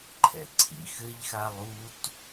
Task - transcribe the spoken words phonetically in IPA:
ǃʰ ɛ̰ ǀʰ ḭ x ɘ ʎ x a lˠ u t

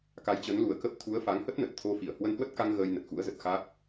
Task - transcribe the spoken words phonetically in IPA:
k a˨˦ j t͡ɕ ə˨˦ n l u˨˩ ə̯ k ə˦˥ p̚ t̪ʰ u˨˦ ə̯ f a˨˦ ŋ h ə˦˥ t̚ n ə˨˩ t̚ t̪ʰ o˧ f i˧˩ ə̯ h w ə˧ n h w ə˦˥ t̚ k a˧ ŋ ɣ əː˧ j n ə˨˩ t̚ x ṵ˧˥ ə̯ z ə˨˩ t̚ x a˦˥ k̚

